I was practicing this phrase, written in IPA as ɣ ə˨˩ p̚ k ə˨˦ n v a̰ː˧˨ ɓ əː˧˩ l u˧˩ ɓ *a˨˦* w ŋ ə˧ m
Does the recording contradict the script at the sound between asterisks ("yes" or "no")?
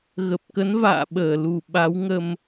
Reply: no